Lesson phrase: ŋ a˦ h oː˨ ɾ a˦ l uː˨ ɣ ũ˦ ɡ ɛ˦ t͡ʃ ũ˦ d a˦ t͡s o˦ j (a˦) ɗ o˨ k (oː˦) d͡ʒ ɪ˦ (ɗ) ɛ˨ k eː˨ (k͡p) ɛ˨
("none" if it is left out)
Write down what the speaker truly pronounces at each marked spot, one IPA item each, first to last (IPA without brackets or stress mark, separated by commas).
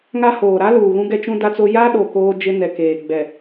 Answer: a˦, oː˦, n, ɡ͡b